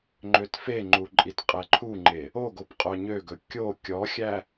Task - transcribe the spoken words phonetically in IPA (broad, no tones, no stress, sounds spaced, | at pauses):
ŋ͡ǃ ø t f e ŋ͡ǃ u ǃʼ i t qʼ ɛ ǃʰ u ŋ͡ǃ e | o ɡ o p qʼ œ ɲ ø ɡ ɵ kʲ o kʲ ɔ xʲ æ